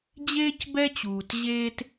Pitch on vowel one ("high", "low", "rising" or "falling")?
high